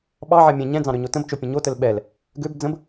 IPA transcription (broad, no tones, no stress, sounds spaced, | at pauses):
ɓ ɑ ʕ ɛ mʲ ɛ̃ ɲ ɛ̃ d͡z ɑ̃ ɾ ø ɲ o t ə̃ b t͡ʃ o pʲ ə̃ ɲ o t ə l ɓ ɛ l | ɡ ø b d͡z ə̃ b